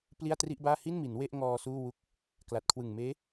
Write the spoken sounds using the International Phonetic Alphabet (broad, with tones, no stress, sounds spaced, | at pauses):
p l i˥˩ a̯ t r i˥˩ ʔ b aː˥˩ h i˥˩ n m i˩˦ n w e˥˩ ʔ ŋ ɔː˧ s uː˥˩ w u˦˥ k̚ | k l a˨˩ t̚ kʰ w ɯ˨˩ ŋ m eː˦˥